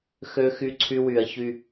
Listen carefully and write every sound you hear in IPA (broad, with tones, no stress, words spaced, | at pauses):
xø˦xy˦ǀʰy˦w y˧ɐ̯çy˦